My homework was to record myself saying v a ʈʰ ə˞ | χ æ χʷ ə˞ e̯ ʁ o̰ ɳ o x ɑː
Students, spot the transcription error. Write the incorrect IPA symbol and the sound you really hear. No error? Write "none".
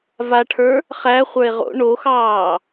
none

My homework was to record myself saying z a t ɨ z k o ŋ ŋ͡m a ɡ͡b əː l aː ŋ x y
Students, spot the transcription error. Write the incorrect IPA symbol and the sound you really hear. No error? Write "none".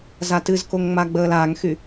none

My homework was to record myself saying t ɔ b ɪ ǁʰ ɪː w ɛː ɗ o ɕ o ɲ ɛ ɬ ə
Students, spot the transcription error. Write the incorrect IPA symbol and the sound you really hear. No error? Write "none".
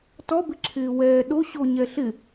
ə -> ɪ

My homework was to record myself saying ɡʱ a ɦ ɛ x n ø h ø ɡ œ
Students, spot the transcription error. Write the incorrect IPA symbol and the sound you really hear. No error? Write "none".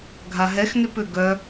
h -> p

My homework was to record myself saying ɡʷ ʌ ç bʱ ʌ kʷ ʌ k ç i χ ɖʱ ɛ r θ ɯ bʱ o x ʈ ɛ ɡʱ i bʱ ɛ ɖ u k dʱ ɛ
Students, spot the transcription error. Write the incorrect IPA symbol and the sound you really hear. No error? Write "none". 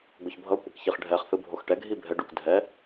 r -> χ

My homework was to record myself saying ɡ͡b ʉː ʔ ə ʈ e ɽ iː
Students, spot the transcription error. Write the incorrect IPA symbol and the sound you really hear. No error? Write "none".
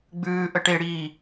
none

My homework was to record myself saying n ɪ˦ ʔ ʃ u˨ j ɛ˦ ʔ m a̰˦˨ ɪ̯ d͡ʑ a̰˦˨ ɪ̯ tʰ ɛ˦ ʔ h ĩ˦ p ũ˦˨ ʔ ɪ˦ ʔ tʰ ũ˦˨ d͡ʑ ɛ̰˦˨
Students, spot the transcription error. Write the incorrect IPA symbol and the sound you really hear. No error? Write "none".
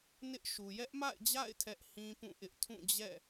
none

